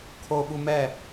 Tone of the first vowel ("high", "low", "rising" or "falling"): high